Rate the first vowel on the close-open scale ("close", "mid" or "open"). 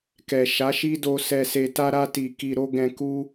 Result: mid